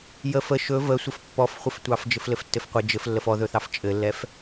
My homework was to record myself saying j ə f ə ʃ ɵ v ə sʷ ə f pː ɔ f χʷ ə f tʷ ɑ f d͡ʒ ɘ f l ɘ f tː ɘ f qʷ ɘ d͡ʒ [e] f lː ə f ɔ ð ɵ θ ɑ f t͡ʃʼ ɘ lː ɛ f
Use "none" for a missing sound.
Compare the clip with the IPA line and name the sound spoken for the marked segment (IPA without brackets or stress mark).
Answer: ɘ